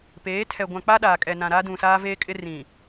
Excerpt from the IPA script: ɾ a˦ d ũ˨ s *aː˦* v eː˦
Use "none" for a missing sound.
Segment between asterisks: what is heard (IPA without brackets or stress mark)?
aː˦